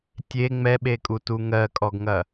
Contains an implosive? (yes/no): yes